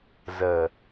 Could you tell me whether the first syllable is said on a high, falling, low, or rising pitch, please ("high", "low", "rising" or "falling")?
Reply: low